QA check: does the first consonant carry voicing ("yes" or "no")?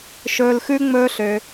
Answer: no